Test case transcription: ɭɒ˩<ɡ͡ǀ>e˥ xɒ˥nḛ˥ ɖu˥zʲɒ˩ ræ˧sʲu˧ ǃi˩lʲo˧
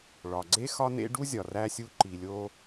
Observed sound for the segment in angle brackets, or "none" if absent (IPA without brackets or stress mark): ɡ͡ǀ